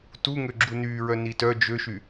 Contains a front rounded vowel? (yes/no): yes